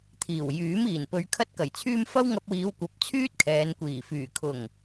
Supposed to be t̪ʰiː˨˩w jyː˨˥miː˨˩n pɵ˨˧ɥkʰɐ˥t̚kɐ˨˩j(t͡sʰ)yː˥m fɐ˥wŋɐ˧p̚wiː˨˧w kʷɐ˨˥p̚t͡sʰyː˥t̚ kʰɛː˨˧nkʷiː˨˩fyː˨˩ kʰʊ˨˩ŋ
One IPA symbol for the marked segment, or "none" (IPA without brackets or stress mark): t͡sʰ